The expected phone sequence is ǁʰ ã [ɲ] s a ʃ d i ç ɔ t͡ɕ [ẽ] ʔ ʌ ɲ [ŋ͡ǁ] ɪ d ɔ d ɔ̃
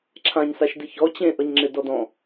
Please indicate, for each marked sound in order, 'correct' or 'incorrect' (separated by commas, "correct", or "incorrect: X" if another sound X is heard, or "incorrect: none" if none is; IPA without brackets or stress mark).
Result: correct, correct, correct